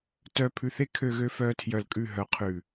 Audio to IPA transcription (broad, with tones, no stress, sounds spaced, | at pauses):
t œː˧ pʰ ʉ˧ θ e˦ kʰ ø˧ ɣ ø˧ f œː˧ tʰ j œ˧ l kʼ ʉ˦˨ ɦ œ˨ qʰ ʉ˨